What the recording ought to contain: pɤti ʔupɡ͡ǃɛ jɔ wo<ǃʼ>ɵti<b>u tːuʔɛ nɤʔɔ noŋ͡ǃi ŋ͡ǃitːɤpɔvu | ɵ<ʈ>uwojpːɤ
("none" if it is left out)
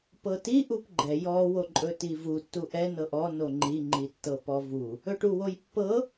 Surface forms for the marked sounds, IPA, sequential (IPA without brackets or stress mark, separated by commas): ǃʼ, v, ʈ